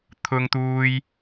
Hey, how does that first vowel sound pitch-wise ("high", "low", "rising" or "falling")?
high